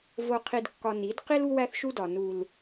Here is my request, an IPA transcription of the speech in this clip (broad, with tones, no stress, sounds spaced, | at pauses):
v o˨ qʰ i˨ d kː ɒ˨ n i˨˦ d q i˦ l u˦ w æ˦ θ ʃ u˦ d ɒ˨ n u˦ l